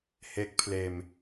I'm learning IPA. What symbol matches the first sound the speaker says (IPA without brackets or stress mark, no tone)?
h